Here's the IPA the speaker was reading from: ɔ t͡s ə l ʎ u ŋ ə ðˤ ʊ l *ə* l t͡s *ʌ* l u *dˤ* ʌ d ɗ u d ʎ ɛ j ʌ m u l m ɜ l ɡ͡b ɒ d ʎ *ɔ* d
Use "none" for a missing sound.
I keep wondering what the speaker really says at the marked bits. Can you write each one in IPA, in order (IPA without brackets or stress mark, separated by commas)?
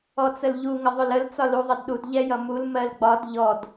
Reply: ə, ɒ, ðˤ, ɔ